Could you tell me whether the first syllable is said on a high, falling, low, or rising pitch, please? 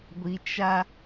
low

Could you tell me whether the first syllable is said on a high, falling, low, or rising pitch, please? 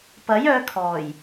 rising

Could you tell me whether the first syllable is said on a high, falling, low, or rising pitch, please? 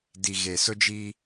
low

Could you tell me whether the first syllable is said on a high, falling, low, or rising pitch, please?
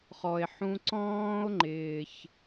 low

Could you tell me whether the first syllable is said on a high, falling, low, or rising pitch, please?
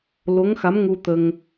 rising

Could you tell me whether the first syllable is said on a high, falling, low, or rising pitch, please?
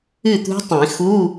falling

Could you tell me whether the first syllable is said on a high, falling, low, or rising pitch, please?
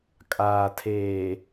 low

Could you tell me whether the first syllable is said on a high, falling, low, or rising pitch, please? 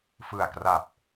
low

